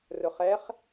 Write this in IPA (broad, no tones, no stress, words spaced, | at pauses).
rʊχɛχ